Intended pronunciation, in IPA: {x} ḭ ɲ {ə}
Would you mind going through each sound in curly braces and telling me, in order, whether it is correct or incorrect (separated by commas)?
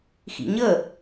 correct, correct